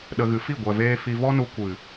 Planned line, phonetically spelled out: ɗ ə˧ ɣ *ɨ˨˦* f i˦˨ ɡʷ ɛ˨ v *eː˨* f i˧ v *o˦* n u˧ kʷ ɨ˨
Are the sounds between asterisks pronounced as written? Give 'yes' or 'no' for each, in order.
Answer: yes, no, no

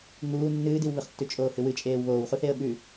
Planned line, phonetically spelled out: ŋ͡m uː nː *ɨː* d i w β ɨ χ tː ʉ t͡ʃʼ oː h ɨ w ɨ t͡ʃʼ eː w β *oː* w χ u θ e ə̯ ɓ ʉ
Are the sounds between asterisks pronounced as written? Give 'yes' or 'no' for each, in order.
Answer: yes, yes

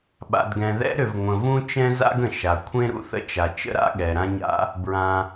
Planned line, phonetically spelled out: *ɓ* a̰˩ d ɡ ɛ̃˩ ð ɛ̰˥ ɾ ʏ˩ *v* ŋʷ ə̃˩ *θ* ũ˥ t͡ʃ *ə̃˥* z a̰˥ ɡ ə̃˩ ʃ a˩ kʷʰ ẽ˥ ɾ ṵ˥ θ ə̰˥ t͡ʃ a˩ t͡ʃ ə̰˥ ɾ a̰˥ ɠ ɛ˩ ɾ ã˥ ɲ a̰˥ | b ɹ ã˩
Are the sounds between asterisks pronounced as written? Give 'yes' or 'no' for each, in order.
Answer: yes, yes, no, no

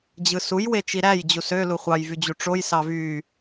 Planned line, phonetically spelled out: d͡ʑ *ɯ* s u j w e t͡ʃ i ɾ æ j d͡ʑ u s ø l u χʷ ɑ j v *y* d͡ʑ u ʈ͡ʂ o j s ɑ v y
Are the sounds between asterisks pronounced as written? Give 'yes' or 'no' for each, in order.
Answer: yes, yes

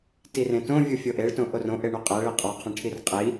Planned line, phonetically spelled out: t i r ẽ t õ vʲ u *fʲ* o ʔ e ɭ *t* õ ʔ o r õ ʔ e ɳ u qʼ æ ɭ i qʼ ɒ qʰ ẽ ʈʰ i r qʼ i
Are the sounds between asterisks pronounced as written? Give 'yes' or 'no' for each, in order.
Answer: yes, yes

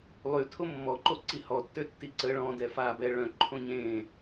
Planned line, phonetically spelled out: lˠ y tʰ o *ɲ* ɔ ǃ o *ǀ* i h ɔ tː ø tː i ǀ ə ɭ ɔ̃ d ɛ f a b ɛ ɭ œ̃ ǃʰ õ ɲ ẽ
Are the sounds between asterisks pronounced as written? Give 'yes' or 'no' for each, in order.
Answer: no, yes

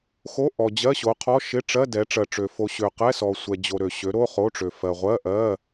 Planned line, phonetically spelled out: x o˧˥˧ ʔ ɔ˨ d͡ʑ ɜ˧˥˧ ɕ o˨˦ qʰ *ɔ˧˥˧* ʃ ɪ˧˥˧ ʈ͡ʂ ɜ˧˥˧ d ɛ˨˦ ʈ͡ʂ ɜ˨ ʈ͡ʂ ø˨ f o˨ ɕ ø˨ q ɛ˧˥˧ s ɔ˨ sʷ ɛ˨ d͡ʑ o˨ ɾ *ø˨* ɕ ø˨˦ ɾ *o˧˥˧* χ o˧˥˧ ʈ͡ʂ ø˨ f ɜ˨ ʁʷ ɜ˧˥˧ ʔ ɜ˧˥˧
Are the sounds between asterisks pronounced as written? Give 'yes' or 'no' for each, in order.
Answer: yes, yes, yes

